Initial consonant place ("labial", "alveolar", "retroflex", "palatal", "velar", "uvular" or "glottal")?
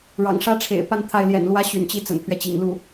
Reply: retroflex